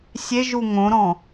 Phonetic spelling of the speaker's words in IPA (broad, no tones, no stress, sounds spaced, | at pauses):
sʲ e ʒ u ŋ õ ɾ ɔ̃